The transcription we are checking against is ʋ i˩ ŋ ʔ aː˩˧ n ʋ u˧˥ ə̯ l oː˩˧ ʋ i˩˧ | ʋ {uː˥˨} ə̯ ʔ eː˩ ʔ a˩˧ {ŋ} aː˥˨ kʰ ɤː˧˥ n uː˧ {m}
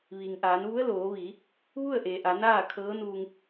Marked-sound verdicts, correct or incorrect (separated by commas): incorrect, incorrect, incorrect